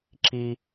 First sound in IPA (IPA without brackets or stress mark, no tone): ǁ